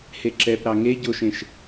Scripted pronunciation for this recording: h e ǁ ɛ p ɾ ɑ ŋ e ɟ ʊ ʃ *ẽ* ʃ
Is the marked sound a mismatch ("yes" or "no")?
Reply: no